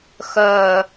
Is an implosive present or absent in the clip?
absent